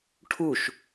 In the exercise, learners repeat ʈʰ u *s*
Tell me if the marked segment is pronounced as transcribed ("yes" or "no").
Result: no